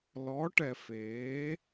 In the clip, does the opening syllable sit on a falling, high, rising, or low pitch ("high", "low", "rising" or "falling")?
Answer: rising